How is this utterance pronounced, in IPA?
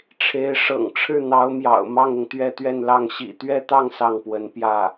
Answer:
ʈ͡ʂʰ e˧˥ ɪ̯ ʂ ɤ̰˨˩ ŋ ʈ͡ʂʰ ɻ̩˥˩ n̪ ɑ˧˥ ʊ̯ m j ɑ̰˨˩ ʊ̯ m ɑ˥˩ ŋ ʊ˩ ŋ t̪ ɥ ɛ˥˧ t̪ ɥ ɛ˥˧ n l ɑ˥˩ ŋ ɕ ḭ˨˩ t̪ ɥ ɛ˥˧ t̪ ɑ˥˧ ŋ s ɑ˥˩ ŋ p w ə˧˥ n p j ä˥˩

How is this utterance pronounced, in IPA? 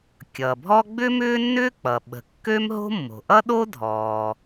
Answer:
kʲ ʌː˩ bʱ ɔ˥ ɡ͡b ʏ˥ m ʏː˥ nː ʏː˥ k͡p ʌ˩ ɓ ə̤˩ kː ø˥ m ɦ o̤˥ mː o̤˩ ʔ ʌ˥ ɗ o˥ dʱ ɔː˩

